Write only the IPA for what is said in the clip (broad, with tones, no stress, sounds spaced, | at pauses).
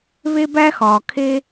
β e˦ b æ˦ x ɒː˨ kʰ e˦